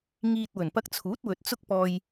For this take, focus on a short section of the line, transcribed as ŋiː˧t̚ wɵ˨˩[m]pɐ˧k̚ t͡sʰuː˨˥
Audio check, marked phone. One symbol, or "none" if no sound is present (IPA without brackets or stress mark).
n